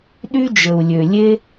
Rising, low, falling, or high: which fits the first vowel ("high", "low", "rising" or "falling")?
high